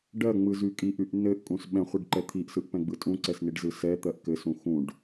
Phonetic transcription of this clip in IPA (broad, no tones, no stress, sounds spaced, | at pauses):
ɖ ɜ ŋ͡m ɯ z y kʼ i ʔ y ʔ n ɘ ʔ kʼ ũ s ɓ ɛ̃ χʷ i ɖ ǃ ɛ t̪ʰ i ʔ s ɯ ʔ p ɛ̃ ɡ͡b ɯ tʼ ũ ǀ ɛ s n i ɖ z ɯ s ɛ t̪ ɜ ʔ k ɘ s ũ x ũ ɖ